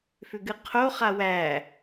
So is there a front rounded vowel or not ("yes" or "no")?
yes